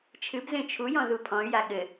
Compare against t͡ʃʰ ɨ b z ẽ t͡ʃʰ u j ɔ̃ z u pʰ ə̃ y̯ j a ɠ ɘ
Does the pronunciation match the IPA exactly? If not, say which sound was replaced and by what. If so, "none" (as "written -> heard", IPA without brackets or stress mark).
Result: ə̃ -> ɔ̃